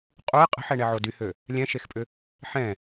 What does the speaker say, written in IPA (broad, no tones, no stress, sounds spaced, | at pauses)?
qʼ u ɪ̯ qʼ ə̤ ħ ɛ ɳ ɛ ʕ o d y h ø | lʲ ɛ̃ ʃ e x pʼ ʏ | ħ ɛ̃